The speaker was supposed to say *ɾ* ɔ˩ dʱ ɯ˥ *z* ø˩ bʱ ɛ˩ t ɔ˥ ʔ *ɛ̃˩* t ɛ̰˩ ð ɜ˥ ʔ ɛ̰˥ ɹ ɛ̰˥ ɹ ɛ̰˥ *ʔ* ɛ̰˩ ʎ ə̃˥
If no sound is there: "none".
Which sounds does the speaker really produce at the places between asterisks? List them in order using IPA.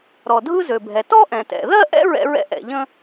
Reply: ɾ, z, ɛ̃˩, ʔ

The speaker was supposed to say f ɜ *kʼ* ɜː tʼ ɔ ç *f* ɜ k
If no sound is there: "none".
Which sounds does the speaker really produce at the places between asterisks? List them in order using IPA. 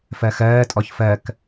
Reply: x, f

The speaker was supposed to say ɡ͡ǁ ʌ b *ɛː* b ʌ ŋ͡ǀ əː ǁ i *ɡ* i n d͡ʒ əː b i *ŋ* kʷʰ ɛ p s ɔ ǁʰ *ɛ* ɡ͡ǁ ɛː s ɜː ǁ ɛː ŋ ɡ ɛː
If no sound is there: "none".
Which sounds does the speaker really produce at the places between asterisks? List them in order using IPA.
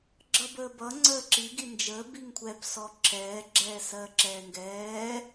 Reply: əː, ɡ, ŋ, ɛː

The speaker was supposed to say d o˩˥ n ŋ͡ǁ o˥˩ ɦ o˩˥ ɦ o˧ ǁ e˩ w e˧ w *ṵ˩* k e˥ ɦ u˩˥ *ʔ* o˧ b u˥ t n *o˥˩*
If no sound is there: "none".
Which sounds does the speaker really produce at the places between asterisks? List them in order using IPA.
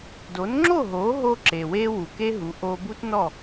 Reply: u˩, ʔ, ɔ˥˩

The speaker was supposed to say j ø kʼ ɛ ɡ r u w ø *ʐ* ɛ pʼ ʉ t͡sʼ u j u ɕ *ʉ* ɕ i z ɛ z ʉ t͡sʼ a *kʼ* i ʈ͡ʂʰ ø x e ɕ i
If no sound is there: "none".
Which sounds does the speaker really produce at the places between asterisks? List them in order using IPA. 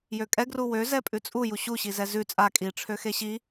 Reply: z, u, kʼ

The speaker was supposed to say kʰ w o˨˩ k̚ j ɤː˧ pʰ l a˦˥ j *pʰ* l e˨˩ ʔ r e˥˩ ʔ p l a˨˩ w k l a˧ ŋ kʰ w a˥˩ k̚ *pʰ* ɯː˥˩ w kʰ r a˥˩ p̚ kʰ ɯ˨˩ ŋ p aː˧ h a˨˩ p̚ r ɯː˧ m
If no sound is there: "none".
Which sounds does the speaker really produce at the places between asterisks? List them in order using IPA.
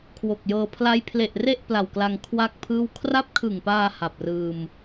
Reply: pʰ, pʰ

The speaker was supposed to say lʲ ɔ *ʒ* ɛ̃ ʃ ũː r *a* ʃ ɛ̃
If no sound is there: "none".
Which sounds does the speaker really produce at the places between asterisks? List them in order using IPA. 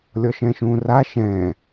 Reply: ʃ, a

